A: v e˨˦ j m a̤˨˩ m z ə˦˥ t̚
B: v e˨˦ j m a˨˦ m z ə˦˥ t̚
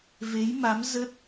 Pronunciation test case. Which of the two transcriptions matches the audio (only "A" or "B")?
B